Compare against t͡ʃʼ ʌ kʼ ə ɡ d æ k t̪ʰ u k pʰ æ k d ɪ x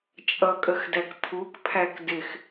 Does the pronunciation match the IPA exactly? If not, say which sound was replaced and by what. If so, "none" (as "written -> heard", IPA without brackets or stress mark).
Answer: ɡ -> x